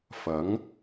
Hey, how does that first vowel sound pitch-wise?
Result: rising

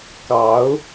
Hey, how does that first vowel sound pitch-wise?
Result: rising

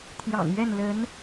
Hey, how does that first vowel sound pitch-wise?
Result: low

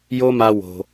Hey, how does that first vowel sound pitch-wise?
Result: high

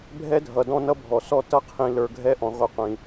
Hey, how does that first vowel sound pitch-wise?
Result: high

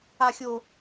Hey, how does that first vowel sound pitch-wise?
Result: high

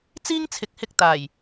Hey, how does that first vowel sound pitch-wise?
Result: high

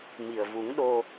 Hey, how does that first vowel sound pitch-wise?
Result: low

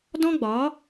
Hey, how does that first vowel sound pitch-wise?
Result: high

